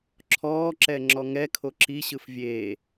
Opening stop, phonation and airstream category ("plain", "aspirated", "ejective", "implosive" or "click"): click